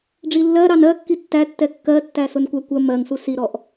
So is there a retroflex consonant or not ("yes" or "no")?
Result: yes